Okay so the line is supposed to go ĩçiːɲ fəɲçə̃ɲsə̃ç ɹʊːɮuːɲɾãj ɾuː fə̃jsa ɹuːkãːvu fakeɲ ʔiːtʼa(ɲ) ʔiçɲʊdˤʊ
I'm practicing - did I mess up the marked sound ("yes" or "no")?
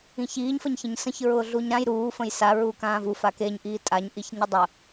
no